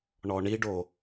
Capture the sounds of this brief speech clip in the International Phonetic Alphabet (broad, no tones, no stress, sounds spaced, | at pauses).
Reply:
ɳ ɔ ɳ i ɖ o